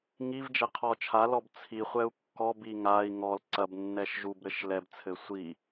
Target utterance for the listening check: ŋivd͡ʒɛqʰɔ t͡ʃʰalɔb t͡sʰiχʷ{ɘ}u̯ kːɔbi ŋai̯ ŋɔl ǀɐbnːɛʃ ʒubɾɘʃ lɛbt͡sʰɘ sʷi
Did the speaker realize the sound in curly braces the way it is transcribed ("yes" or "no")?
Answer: no